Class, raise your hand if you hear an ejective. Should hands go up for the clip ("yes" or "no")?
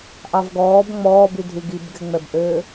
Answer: no